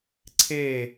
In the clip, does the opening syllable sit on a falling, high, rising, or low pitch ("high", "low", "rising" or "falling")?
falling